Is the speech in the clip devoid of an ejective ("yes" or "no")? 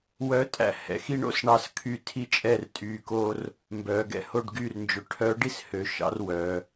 no